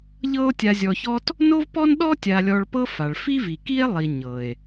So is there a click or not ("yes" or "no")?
no